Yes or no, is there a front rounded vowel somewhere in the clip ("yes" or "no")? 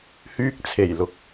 yes